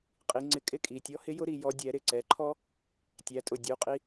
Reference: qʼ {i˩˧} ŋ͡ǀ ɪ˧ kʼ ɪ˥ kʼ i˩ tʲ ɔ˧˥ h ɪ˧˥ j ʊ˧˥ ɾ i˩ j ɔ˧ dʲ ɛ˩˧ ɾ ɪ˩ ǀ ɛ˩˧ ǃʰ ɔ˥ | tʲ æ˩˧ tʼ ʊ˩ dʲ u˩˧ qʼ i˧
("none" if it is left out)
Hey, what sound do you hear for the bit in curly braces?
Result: i˩˧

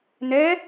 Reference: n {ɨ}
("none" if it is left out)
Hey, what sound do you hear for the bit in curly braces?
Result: ɛ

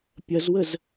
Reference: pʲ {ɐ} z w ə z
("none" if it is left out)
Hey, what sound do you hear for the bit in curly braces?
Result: ɐ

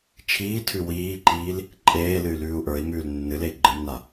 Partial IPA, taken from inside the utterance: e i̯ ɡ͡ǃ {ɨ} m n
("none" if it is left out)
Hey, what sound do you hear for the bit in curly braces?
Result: ɨ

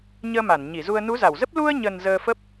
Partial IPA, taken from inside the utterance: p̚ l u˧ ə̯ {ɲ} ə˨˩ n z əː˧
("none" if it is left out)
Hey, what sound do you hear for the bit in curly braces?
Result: ɲ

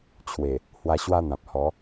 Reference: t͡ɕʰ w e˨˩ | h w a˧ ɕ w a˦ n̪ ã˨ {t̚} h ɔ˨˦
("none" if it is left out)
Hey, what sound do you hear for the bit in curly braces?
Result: p̚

